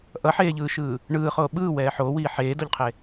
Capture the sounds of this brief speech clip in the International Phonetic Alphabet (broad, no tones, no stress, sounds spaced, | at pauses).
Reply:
ʔ ʌ ħ eː ʎ ɯː ʃ ɯː | ɳ ɯː χ oː ɓ ɯː w ɛː ħ oː w iː ħ eː d o ʎ qʰ e